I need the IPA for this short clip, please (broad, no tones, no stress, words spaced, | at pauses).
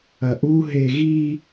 ɐʔu ɦeɣi